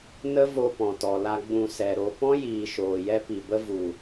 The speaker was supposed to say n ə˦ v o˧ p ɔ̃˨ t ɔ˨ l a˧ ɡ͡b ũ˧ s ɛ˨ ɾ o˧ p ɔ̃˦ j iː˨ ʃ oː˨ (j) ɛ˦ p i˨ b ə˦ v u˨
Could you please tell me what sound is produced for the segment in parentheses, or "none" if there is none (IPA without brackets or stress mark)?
j